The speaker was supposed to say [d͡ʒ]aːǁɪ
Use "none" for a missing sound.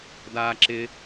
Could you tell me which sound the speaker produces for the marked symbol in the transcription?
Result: d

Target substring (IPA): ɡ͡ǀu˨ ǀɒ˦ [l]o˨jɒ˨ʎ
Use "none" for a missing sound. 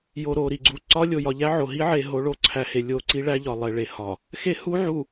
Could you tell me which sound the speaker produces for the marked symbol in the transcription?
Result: lʲ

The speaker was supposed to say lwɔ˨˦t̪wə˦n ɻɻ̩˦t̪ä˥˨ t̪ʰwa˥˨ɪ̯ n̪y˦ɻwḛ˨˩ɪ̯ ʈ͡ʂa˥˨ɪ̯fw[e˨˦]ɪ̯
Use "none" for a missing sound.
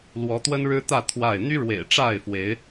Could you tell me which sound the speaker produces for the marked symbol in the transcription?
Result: e˨˦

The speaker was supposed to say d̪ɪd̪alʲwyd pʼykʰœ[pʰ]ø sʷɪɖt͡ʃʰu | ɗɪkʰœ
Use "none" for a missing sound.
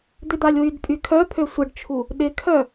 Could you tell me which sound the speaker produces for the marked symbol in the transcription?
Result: pʰ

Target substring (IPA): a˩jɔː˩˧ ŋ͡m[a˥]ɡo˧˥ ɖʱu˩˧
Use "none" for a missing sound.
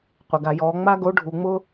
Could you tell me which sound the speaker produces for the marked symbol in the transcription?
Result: a˥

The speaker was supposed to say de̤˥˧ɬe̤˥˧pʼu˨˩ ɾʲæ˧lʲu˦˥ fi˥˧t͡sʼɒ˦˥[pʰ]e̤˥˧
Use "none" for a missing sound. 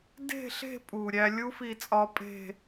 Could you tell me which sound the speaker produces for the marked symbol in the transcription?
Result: pʼ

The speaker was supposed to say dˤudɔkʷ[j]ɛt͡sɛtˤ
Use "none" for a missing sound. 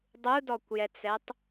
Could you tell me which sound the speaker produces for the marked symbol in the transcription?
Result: j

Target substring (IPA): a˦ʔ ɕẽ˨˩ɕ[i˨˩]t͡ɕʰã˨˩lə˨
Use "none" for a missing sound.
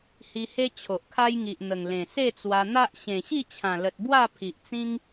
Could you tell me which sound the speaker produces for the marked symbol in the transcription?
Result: i˥˧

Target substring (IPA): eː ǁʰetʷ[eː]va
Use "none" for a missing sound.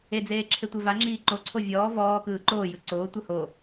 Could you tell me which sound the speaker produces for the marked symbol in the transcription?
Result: e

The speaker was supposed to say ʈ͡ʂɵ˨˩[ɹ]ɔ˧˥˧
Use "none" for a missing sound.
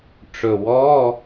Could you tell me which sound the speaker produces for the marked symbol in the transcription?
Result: w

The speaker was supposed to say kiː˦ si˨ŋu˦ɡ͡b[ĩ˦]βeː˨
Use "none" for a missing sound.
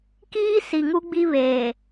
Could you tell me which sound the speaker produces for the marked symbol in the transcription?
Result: i˦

